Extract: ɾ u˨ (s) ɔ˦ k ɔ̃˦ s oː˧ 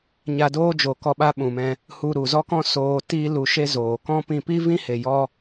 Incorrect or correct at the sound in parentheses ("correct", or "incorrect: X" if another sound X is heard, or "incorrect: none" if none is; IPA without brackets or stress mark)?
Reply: incorrect: z